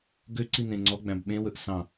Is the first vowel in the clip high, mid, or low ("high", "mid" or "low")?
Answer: mid